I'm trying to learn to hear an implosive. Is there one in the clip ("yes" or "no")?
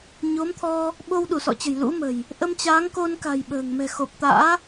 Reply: yes